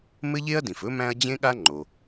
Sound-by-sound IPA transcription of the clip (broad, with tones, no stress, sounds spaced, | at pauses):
m ɘ˥ ʎ e˥ ɐ̯ d ĩ˩ f ɵ˥ m æ̃˥ ɐ̯ d͡ʑ ẽ˥ ɠ a˥ ŋ͡ǃ o˩